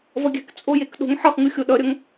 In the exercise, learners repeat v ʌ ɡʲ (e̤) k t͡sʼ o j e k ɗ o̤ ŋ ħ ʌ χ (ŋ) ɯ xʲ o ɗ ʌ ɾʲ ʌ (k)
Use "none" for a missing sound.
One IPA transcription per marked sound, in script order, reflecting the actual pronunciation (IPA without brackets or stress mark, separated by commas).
ɛ̤, ŋ, ŋ